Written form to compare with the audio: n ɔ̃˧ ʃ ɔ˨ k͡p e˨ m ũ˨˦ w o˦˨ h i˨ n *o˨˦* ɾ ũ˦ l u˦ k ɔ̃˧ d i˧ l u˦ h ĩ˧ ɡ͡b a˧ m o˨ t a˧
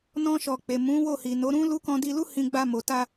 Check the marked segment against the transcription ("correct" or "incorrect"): correct